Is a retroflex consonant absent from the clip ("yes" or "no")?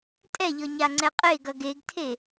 yes